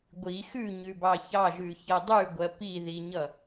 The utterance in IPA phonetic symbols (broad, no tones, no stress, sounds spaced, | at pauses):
ɡʷ i x ʉ ɲ ʉ b ɑ ç ɑ ʒ ʉ ç ʌ dˤ ʉ ɡʷ ɜ p i ð i ɲ ʌ